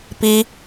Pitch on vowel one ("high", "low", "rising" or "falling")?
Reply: high